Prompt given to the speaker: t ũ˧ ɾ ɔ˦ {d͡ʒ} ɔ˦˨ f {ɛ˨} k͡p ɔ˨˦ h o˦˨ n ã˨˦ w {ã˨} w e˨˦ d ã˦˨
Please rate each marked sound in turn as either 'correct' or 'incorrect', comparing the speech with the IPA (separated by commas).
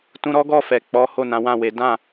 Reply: incorrect, correct, incorrect